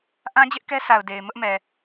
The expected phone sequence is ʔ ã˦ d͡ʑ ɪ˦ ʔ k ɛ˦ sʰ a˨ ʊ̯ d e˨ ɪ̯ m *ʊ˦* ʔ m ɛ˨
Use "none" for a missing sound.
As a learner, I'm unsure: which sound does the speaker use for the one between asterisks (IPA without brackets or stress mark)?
ʊ˦